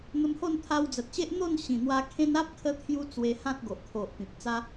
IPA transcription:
n̪ə˧mho˥˧nt̪ʰa˧w d͡zə˨t̚ɕe˦ʔ n̪o˥˧n ɕĩ˨˩n̪wa˧ kʰẽ˦n a˦p̚kʰə˧t̪ʰju˧ t͡swe˧hã˦t̚ ɡo˨ʔkʰo˨ʔpĩ˨p̚ t͡sa˦

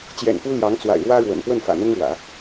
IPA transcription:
t͡ɕjɛ̰˨˩n pu˥ ljɑ˧˥ŋt͡swa̰˨˩ɪ̯ ɻwä˥ɻwə̰˨˩n pwə˥˩nfä̰˨˩n̪ʊ˥ŋɻwä̰˨˩˦

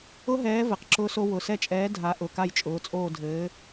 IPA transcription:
ʊ˦˥ɦɛː˨˥ vɘ˩˧˩qǁʊː˦˥so˦˥ wʊ˩˧˩sɛ˦˨t͡ʃʼɛː˨˥ dʱa˨˥ʔʊ˩˧˩ ka˦˨jt͡ʃʼʊː˩˧˩t͡sʼoː˦˨dʱɘː˨˥

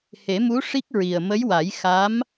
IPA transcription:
he˨˩˦mu˧˥ ʂi˦˥k̚ ɹi˨˩ə̯mə˧˥jwa˨˩˦j xa˧˥m

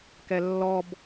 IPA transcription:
kɛlːɔb

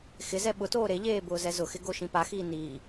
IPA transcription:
xɪzɛ ɓʊtoː ɾeʎeː bʊːzɛzʊxɪ ɡoʃĩpaxiː niː

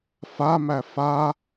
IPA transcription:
famæ fa

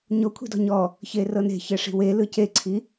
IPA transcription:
ɲo kʷʰi̤dɔ̤ɲɔ | çerɤne̤ çɛʂi̤we lɯceǀʰi

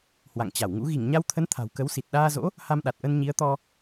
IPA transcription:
hwa̰˧˨ŋt͡ɕa˧˩wŋṵ˧˥ ɣi˧˩ŋɲa˧wt̪ʰə˨˦n t̪ʰa̤˨˩wkə˨˦wsi˨˩t̚ ɗaː˧zo̰˧˥ | ha˧mɗa˨˩t̚ʔə˧n ɲi˨˦ə̯t̪ɔ˧

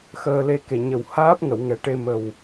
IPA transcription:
xəː˧le˧ ke˨˩ɲə˨˩w haː˦˥p̚ŋə˨˩˨w ŋɛ˨˩˦ʈe˧ mə˨˩w

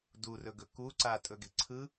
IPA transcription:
durɵɡɵ ku ǀa tʼɵɡe̤ǀʰɯ

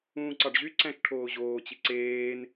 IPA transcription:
ũːǀɑɖʑyǀæ̃ʃ ʈʰoːʑoːt͡ɕi ǀeːn

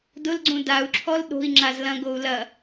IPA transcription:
dʊlɡ͡ǀũ dau̯ǁʰɔl ɗo̤i̯ŋ͡ǁaz lɐ̃ɡou̯ lɐ

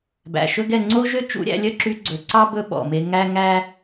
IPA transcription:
bæ̰˨ʃɵ˦ɡɛ˦˨ ŋ͡ǀo˦ʒø˦ t͡ʃṵ˨˦ɾʲæ̰˧lʲœ˦ǁy˧ ɡ͡ǀɵ˨ǀɑ˦ bɵ˦ɓɔ̰˨me˧ ŋæ˦ ŋæ˦

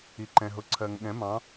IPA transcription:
i˩ǃɛ̃˩ɦʊ˩˥ ǀʰɜ˩ŋɠɛ̃˩˥mɑ̃˩˥

